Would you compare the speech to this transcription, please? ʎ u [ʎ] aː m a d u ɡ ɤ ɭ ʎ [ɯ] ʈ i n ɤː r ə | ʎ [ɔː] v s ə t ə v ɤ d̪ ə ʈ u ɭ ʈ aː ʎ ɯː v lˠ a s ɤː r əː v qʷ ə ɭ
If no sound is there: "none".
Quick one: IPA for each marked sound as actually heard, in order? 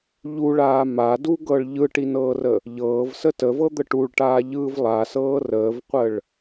ɭ, ɯ, ɤː

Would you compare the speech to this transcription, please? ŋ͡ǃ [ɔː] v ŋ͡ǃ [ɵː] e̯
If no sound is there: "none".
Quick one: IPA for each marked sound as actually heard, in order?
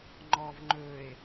ɔː, ɵː

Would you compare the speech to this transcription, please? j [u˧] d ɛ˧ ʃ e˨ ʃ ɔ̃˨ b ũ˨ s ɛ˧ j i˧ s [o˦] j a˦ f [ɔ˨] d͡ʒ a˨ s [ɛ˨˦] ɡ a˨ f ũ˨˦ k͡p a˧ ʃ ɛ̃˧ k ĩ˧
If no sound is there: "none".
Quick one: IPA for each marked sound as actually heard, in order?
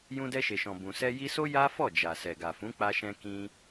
ũ˧, o˦, ɔ˦˨, ɛ˨

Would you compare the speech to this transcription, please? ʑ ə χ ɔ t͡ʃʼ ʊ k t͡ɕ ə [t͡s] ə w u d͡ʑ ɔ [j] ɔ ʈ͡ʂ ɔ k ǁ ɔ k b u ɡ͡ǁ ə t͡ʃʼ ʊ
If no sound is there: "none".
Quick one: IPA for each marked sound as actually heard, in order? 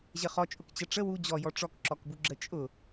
ʈ͡ʂ, j

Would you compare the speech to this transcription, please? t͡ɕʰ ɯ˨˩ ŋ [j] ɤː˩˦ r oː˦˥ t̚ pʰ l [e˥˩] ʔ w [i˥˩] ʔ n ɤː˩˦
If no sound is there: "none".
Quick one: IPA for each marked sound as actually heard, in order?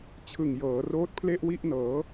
j, e˥˩, i˥˩

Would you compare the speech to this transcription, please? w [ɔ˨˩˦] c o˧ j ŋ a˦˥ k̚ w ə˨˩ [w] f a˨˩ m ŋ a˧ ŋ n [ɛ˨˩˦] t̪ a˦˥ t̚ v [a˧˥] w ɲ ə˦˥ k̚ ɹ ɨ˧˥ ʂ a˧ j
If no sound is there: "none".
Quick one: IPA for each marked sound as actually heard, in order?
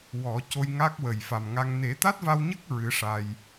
ɔ˨˩˦, j, e˨˩˦, a˧

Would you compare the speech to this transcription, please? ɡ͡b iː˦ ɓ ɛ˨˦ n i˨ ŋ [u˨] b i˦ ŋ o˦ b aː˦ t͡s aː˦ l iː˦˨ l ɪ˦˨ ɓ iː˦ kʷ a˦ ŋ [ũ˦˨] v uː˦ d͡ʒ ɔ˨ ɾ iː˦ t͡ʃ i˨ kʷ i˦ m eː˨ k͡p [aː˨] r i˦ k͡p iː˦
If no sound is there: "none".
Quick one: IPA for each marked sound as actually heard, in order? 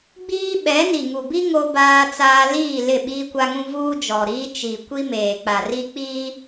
u˨, ũ˦, a˨

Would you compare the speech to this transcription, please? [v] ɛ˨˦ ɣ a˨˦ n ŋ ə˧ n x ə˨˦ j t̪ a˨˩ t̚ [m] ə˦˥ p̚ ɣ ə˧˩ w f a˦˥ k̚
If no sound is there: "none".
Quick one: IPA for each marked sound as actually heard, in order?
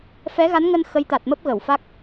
f, m

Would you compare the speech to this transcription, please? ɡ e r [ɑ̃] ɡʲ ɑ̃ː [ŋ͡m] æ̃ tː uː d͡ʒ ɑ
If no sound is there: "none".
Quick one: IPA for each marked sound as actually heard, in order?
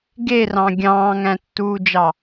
ɑ̃, ŋ

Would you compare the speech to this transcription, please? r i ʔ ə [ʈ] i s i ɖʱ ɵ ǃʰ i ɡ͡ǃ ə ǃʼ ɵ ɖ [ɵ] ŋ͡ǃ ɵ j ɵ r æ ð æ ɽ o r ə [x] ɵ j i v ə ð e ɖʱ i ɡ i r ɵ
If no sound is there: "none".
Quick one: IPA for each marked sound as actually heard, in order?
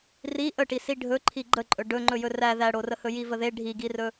ʈ, ɵ, h

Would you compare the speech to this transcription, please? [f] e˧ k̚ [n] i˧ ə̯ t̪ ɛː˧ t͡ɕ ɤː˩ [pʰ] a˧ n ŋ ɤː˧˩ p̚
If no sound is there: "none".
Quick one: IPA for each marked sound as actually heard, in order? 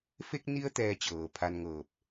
f, n, pʰ

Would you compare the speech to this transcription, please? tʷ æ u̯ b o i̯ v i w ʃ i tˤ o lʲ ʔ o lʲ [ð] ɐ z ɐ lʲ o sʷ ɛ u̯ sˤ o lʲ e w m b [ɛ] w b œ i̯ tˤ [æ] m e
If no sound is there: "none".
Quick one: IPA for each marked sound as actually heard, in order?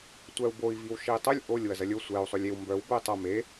w, œ, ɐ

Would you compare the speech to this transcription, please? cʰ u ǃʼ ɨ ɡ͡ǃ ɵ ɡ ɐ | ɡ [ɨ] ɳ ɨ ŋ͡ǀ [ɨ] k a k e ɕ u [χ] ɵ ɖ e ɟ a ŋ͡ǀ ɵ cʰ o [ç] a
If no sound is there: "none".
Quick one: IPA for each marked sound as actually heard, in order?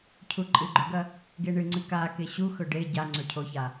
e, ɨ, x, ç

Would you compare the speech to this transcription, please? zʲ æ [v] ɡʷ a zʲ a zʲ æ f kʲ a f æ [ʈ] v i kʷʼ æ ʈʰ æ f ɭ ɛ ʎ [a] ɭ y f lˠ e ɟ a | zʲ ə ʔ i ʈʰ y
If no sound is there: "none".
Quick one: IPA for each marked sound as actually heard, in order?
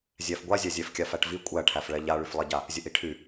f, ʈ, a

